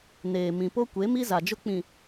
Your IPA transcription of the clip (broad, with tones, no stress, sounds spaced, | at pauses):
n eː˨ m ĩ˨ p o˦ kʷ e˨˦ m i˦ z a˨ d͡ʒ ʊ˦ k͡p ĩ˨